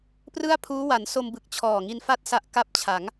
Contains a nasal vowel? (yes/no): no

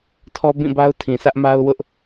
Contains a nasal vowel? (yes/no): yes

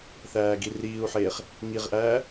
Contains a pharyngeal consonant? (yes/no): yes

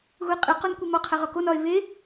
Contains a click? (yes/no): no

